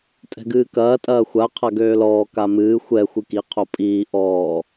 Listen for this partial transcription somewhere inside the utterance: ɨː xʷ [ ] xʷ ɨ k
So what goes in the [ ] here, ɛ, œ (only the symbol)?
ɛ